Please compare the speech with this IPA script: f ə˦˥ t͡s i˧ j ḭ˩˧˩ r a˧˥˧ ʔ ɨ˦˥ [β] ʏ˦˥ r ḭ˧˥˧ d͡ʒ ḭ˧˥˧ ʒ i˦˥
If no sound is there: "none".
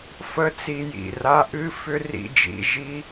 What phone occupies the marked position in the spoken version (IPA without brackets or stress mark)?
f